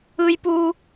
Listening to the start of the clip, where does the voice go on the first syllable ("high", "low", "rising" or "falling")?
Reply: high